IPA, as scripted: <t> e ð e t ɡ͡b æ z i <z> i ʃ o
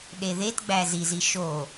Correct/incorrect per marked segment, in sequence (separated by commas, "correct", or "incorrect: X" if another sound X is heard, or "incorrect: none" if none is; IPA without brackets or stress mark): incorrect: ɗ, correct